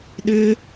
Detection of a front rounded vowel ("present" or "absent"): present